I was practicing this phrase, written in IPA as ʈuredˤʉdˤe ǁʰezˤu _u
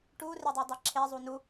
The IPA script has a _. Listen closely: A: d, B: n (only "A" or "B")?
B